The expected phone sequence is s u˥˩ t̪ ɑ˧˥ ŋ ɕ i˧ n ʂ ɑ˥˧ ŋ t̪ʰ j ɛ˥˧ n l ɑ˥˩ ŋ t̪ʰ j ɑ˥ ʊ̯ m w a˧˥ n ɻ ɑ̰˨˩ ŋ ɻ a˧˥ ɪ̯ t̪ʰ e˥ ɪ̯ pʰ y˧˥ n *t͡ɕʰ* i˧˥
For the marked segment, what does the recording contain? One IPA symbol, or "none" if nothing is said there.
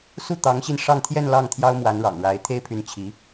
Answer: t͡ɕʰ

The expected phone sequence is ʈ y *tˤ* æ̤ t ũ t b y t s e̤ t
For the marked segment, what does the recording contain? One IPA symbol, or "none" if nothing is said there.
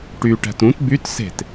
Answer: ʈ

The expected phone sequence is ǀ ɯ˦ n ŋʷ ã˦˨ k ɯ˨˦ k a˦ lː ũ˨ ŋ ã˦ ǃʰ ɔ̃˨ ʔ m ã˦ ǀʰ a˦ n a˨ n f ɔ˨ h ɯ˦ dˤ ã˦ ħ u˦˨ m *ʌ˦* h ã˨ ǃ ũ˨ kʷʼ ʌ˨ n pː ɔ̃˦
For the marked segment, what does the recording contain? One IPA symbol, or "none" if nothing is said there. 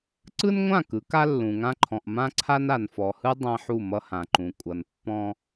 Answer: ʌ˦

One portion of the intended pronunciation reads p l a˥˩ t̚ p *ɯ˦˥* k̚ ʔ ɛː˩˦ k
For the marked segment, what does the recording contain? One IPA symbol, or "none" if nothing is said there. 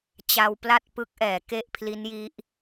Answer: ɯ˦˥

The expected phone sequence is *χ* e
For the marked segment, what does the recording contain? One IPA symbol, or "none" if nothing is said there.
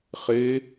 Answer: χ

